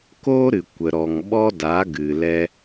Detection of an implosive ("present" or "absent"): present